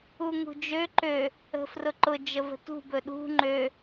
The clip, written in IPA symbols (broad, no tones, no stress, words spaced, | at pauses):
uŋṳd͡ʒø ǃø | ə̤frʊǃʊ d͡ʒəvə̤tṳ bɵɗṳ ŋ͡ǃø